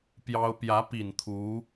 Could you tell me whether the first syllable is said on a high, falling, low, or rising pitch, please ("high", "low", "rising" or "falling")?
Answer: high